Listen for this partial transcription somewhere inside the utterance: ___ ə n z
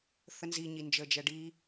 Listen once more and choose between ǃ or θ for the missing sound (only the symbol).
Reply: θ